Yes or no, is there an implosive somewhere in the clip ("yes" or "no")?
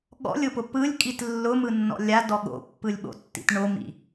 yes